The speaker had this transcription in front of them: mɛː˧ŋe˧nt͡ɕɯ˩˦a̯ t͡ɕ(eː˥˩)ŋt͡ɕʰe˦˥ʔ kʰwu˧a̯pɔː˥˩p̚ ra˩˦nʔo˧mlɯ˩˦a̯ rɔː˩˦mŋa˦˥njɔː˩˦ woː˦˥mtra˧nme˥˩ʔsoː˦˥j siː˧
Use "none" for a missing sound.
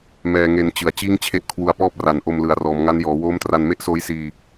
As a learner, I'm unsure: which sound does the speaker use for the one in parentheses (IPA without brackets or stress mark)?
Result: iː˥˩